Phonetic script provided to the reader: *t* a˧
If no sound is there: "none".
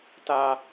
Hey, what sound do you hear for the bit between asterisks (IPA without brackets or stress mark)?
t